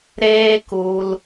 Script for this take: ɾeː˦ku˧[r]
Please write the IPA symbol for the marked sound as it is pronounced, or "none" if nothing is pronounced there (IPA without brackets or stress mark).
l